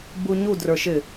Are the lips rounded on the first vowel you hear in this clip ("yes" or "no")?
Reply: yes